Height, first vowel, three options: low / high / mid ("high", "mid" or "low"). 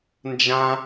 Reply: low